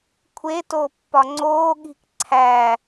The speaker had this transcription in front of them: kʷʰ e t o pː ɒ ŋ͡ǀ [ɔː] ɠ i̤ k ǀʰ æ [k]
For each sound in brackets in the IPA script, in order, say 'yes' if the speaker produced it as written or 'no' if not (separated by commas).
no, no